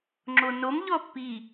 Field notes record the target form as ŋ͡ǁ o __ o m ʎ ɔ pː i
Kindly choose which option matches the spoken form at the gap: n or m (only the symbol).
n